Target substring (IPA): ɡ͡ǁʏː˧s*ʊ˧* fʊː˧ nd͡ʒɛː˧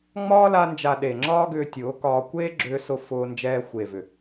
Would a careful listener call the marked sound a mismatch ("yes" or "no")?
no